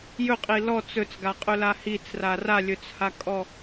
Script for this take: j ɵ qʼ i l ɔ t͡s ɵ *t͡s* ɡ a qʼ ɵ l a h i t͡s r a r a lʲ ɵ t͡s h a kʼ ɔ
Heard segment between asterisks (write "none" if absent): t͡s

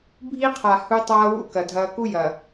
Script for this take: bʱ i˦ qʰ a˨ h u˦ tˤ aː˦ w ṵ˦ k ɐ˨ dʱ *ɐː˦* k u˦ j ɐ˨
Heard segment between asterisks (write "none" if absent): ɐː˦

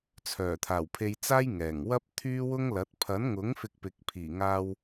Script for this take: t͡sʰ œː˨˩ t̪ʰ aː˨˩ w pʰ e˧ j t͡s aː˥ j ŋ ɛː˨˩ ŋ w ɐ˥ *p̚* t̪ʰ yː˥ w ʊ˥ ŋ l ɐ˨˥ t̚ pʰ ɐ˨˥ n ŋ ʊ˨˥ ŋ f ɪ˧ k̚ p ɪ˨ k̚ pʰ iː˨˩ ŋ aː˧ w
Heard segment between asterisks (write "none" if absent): p̚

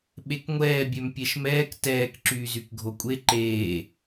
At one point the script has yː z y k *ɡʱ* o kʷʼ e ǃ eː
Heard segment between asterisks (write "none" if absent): ɡʱ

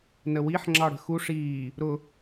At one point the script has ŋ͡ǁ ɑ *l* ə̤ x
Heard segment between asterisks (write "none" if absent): ɽ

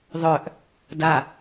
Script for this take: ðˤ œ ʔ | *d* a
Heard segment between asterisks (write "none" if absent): d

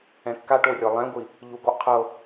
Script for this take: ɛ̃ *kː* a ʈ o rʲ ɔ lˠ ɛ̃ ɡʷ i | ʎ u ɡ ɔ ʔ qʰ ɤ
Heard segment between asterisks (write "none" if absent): kː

